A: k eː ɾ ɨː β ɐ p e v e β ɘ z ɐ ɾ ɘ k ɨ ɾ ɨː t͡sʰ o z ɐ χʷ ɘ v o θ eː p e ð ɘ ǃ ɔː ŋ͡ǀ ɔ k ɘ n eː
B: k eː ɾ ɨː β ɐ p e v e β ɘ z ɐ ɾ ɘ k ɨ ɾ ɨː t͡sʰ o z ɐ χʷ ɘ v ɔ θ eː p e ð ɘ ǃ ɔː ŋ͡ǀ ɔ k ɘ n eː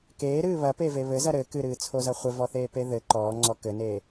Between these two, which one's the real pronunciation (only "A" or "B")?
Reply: B